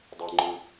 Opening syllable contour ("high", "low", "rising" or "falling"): low